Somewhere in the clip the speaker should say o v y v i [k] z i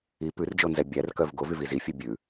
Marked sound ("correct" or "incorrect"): incorrect